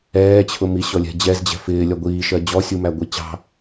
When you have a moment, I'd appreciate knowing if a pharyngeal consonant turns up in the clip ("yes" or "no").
no